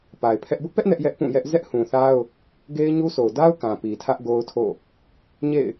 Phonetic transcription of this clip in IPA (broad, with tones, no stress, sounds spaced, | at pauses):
p a˨ ɪ̯ pʰ ɛ˦ ʔ b ʊ˦ ʔ p ɛ˦ ʔ n ɛ˦ ʔ j ɛ˦ ʔ p ũ˦˨ j ɛ˦ ʔ z ɛ˦ ʔ h ũ˨ θ a˦ ʊ̯ | ɡ e˦ ɪ̯ ɲ u˦ sʰ o˨ ʊ̯ d a˦ ʊ̯ k ã˨ p i˨ tʰ ä˦ ʔ ɡ o˦ ʊ̯ tʰ o̰˦˨ | ɲ ḛ˦˨ ɪ̯